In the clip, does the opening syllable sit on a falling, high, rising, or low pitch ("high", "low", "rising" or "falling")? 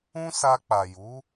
high